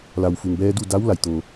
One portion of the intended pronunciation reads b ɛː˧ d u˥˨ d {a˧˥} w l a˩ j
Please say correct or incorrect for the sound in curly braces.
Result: correct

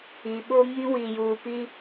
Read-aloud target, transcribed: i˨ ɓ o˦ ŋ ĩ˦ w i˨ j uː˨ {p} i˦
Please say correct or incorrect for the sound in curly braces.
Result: correct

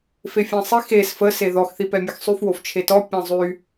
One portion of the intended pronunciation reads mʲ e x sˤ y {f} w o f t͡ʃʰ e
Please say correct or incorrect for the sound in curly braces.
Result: correct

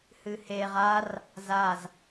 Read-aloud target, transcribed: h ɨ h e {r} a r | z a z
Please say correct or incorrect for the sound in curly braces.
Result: incorrect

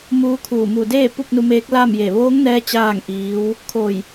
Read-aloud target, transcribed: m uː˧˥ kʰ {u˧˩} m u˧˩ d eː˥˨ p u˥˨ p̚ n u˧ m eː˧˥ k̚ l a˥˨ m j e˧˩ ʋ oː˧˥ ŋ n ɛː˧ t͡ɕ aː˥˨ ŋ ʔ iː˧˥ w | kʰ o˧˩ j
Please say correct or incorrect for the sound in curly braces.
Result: incorrect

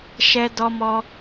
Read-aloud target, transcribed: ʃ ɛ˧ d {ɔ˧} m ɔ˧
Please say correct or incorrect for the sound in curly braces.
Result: correct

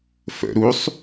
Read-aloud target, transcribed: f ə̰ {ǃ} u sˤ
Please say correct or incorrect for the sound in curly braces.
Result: incorrect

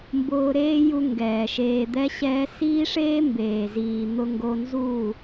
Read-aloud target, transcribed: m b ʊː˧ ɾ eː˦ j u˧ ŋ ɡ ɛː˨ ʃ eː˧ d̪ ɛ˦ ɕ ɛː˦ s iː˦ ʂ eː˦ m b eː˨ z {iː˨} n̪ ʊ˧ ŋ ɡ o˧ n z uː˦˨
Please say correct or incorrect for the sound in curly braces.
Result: correct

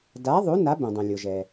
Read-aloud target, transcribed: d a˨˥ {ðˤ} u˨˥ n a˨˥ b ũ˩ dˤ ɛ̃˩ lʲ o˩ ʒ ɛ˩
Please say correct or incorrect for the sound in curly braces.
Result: correct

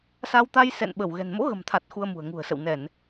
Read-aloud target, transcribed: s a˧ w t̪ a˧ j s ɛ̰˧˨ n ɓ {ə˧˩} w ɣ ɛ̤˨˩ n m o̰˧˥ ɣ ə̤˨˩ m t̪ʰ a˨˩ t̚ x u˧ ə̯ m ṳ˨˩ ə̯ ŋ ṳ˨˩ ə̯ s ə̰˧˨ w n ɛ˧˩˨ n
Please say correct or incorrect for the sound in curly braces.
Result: correct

